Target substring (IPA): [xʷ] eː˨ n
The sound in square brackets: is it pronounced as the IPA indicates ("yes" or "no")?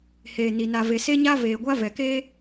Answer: no